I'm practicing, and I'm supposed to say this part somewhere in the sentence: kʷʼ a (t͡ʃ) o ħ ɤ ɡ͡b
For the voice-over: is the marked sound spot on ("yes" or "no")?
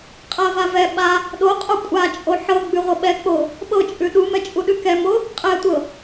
no